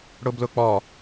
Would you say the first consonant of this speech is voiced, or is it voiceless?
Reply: voiced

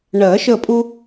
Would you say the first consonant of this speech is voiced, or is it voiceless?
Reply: voiced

